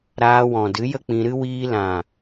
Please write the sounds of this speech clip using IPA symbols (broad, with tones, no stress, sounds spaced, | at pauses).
ɾ aː˧ w ɔ̃˨ d ɨ˨˦ j ə˦ k͡p ĩ˧ ɾ ɨ˦ w iː˧ l ã˨